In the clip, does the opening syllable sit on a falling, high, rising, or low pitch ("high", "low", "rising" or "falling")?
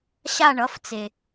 falling